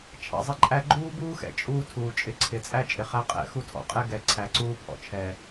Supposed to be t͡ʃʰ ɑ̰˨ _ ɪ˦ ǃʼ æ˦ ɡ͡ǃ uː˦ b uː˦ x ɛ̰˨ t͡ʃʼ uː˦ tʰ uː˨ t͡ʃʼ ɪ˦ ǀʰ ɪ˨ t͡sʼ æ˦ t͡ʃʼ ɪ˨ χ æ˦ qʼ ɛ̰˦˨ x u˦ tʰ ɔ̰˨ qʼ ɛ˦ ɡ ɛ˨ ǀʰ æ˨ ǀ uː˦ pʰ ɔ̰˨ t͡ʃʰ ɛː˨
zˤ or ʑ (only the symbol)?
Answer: zˤ